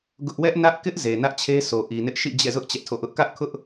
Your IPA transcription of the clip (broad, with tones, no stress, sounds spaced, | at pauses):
ɡ ʊ˦ ʔ w ɛ˦ ʔ n ä˦ ʔ k ɪ˦ ʔ z e˨ n ä˦ ʔ t͡ɕʰ e˦ s o˨ ʔ i˨ n ɪ˦ ʔ ʃ ḭ˦˨ d͡ʑ ɛ̰˦˨ z ʊ˦ ʔ t͡ɕ ɛ˦ ʔ tʰ o̰˦˨ ʔ ʊ˦ ʔ k ä˦ ʔ kʰ ʊ˦ ʔ